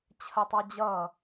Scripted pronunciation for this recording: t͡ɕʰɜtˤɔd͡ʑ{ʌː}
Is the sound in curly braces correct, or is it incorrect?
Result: correct